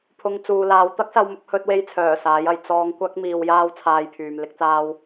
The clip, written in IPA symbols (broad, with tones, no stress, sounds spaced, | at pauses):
pʰ ʊ˨ ŋ t͡s uː˨ l aː˨˧ w t̪ ɐ˥ k̚ s ɐ˧ w m ʊ˧ k̚ h ɵ˧ t̚ w e˧ j t͡sʰ œː˨˩ s aː˨˥ j ɐ˨˧ j t͡s ɔː˧ ŋ kʷ ɐ˥ k̚ m iː˧ w j aː˥ w t͡sʰ aː˧ j pʰ yː˨ m l ɪ˥ k̚ t͡s aː˥ w